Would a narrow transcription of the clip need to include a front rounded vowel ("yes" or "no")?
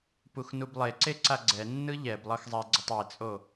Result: no